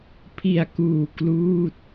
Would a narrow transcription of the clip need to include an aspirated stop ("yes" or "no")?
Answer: yes